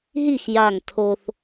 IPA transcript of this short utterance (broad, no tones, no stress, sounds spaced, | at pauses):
ɦ i x j a ŋ tʰ o θ